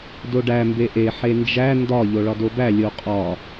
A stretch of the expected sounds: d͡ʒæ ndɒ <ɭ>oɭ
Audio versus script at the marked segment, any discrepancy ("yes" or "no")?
yes